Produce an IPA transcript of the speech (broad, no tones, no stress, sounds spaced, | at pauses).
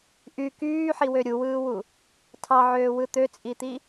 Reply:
ʔ y k yː ħ i w ø ɾʲ u w ɯː w u | tʰ ɑ ʕ øː w ɯ t̪ ø t͡sʼ i t̪ i